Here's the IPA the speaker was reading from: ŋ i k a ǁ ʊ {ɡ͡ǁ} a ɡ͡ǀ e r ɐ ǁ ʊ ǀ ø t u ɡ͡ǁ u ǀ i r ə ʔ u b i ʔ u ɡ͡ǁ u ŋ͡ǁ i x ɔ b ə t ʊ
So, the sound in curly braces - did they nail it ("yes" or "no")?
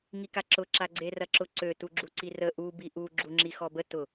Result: no